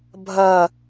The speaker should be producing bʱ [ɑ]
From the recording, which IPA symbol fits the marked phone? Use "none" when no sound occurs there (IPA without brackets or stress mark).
ɐ